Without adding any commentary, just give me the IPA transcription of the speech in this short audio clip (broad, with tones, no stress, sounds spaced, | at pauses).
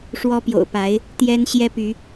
ʂ w ɔ˦ p j o̰˨˩ ʊ̯ p a˨˦ ɪ̯ | t̪ j ɛ˦ n ɕ j ɛ˦ p y˨˦